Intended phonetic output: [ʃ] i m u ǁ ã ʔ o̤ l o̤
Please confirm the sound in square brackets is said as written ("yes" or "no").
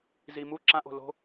no